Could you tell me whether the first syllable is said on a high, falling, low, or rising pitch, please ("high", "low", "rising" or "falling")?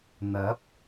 rising